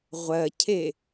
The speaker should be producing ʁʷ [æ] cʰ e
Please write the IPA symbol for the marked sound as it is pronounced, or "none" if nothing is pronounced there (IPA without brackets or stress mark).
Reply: ɜ